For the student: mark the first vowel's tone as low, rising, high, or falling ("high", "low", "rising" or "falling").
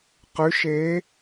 rising